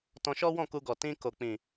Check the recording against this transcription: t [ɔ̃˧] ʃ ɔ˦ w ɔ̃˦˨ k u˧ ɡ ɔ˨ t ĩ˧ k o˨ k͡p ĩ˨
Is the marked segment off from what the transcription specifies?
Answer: no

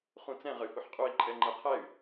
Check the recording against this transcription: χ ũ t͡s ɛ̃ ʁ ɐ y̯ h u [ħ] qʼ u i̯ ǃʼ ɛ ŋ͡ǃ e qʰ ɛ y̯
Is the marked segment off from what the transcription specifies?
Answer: no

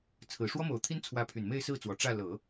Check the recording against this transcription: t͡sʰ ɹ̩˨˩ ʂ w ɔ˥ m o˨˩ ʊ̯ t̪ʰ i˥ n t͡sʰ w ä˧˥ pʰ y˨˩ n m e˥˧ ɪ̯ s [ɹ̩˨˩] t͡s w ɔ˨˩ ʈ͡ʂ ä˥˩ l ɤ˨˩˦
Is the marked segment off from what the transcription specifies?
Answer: yes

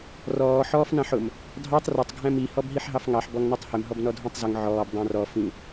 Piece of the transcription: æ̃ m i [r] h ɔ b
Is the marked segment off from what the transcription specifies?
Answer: yes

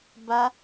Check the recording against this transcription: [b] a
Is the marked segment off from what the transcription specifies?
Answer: no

